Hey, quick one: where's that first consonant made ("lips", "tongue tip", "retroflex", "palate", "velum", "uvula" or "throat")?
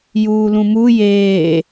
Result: palate